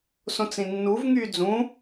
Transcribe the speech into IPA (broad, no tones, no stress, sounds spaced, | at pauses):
s õ t͡s ĩ nː u v ŋ yː d͡z ũ